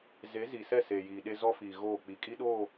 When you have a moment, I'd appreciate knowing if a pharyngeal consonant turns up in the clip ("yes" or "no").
no